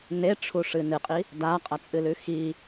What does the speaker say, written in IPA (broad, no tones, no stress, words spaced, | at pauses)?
neʈ͡ʂʰuʂɨ nɨqʼi | daqʼɐt͡sʼɨlʉ xi